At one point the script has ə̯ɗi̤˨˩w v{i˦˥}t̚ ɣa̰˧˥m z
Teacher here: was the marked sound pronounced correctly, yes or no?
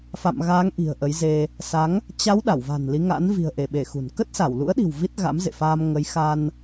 yes